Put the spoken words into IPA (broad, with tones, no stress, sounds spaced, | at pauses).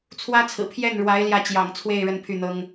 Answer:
t͡sʰ w ä˥ t͡sʰ ɹ̩˨˩ pʰ j ɛ˥˩ n ɻ w a˧˥ ɪ̯ l j ä˥˩ t͡ɕ j ɑ̰˨˩ ŋ t͡sʰ w e˥˩ ɪ̯ ɻ ə˥ n pʰ y˥˩ n̪ ɤ˥ ŋ